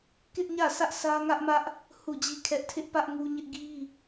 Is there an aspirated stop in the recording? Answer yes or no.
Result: yes